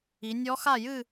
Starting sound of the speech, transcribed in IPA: i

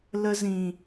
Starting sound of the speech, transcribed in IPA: l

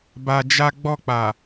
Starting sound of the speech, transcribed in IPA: b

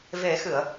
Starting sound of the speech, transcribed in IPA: v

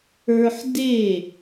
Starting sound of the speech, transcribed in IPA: ə˞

